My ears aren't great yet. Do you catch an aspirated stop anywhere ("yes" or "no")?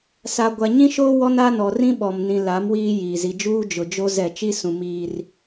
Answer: no